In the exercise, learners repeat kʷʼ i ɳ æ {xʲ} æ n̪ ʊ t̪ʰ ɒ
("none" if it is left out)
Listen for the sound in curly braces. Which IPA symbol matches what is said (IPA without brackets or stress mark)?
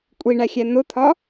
xʲ